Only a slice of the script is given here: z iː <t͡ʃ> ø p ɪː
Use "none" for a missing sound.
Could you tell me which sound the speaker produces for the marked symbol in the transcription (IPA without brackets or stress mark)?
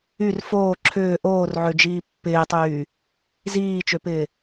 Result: t͡ʃ